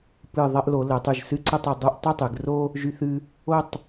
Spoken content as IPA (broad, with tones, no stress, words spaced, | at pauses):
pɨ˧˩ ðˤɐ˥˧ʔlo˩˧lə˩˧tˤy˧˩ʒ sɨ˥˧ǀə˥˧tˤɐ˩˧ dˤɨ˥˧ʔ tˤɨ˥˧tˤɨ˩˧ɡro˥ | ʒy˧θɨ˧ | o˥˧tˤ